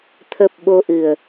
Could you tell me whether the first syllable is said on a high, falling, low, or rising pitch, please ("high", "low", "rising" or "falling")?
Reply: low